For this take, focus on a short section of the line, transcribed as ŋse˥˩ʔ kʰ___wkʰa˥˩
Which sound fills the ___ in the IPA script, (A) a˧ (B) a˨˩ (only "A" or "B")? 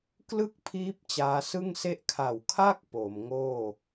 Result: B